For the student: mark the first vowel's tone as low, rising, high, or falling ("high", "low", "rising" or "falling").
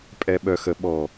low